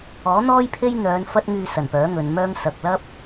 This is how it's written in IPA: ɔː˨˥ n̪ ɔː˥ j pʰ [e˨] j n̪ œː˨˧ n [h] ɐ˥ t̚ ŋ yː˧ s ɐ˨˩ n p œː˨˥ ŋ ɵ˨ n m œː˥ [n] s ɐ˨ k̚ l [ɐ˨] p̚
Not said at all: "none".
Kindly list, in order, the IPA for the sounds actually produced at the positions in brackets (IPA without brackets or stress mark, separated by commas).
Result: e˥, f, ŋ, ɐ˥